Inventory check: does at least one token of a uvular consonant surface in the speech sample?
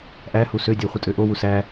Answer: yes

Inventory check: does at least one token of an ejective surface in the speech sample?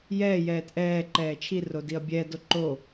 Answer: no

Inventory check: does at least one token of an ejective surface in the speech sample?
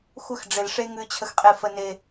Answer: yes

